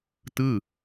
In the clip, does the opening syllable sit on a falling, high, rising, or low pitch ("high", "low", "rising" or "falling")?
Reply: falling